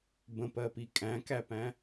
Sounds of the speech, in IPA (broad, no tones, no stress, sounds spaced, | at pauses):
b ə̃ p ɜ p i kʼ æ̃ k æ p æ̃